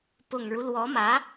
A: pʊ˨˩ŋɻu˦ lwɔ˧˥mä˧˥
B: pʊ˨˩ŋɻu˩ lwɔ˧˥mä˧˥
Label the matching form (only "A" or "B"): A